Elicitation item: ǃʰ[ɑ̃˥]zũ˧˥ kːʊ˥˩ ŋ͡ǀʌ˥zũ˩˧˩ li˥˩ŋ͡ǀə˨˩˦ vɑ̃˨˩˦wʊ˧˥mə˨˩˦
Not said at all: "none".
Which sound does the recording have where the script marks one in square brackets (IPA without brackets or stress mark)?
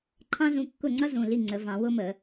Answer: ɑ̃˥